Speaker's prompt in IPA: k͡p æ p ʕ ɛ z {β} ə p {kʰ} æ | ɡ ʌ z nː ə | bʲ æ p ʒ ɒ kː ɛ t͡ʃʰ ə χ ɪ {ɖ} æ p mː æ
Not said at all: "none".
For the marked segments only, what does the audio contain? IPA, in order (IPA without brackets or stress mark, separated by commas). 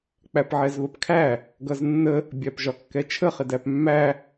β, kʰ, d